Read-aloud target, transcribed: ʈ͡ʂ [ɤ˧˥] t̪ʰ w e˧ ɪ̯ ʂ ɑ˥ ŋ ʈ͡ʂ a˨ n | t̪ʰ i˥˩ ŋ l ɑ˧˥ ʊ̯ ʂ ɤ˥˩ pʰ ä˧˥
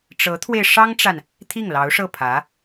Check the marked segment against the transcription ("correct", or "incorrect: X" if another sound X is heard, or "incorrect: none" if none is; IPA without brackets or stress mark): correct